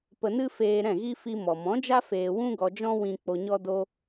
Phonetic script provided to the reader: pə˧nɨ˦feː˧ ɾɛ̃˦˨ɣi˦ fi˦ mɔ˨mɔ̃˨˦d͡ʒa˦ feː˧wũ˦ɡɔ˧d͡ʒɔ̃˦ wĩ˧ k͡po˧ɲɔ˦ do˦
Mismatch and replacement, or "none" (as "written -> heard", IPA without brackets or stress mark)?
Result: none